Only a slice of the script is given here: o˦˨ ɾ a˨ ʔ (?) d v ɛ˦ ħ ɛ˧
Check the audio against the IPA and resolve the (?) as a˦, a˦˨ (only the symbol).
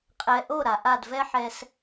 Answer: a˦˨